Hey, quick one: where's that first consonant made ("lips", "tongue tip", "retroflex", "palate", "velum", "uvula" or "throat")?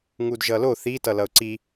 velum